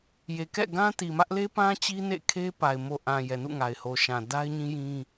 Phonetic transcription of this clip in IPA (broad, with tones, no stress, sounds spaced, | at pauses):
j e˨ k ɛ̰˦˨ ɡ ã˦ t i˨ m ä˦ ʔ l e˦ p ã˦ t͡ɕ i˦ n ḛ˦˨ kʰ e˦ p a˨ ɪ̯ m o˨ ʔ ã˨ j ɛ˨ n ṵ˦˨ ŋ a˨ ɪ̯ h o˨ ʃ ã˨ d a˦ ɪ̯ ɲ ĩ˦ j ĩ˦